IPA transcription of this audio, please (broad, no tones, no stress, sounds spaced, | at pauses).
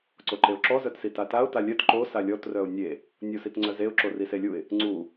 ǀ o ǃ e ʊ̯ ǁ ɔ z œ t s i t a t a ʊ̯ t a lʲ œ t ǃ o s a lʲ ɔ t r œ ʊ̯ nʲ e | nʲ o s i t ŋ͡ǀ œ z e ʊ̯ ǁ o r i s e lʲ u ɪ̯ | ŋ͡ǀ u